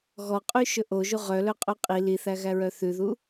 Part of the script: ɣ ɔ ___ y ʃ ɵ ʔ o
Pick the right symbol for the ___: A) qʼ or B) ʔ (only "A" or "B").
A